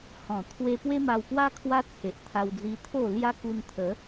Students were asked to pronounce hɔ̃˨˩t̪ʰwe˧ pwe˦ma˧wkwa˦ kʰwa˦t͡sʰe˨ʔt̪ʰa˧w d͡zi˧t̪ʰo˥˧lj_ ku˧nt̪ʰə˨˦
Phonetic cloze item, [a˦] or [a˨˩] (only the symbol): a˦